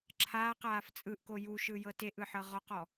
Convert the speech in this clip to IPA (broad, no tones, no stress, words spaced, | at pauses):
ǁʰaːqaːf t͡sʼɯʔko juʃɯjɤ teʔɯħɤ ʁɔqɔ